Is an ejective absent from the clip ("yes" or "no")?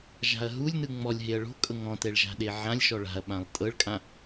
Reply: no